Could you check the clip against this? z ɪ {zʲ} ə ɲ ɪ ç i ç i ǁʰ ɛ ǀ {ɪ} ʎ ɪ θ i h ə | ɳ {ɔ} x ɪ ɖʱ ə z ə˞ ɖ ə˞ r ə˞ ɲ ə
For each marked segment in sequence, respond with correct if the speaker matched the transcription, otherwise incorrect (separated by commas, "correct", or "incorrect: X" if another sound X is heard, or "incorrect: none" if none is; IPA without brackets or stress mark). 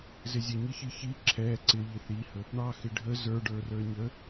correct, correct, incorrect: ɑ